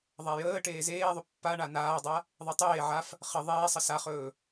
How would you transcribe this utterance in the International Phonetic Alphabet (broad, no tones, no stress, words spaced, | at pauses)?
ðˤajəː ʈeːzeːðˤɵ pːaɳa naːdˤa | ðˤetˤeː ʕaf | χə ðˤeːsˤə saχɵː